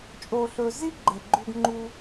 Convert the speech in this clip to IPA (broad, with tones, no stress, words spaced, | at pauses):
t͡ʃʼo˧ɬɵ˧ zi˥ ɡ͡ǃe˧ɡ͡ǃu˥ɡŋ͡ǃu˥